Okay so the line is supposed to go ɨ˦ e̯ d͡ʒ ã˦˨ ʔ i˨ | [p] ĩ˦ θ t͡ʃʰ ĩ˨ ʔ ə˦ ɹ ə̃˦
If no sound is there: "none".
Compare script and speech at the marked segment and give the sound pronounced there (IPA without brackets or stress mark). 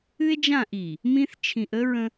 m